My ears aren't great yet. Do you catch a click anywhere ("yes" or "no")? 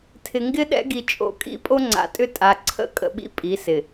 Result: yes